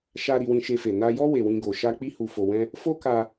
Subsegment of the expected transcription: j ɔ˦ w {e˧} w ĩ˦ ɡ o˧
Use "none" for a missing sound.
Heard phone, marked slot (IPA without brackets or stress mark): e˧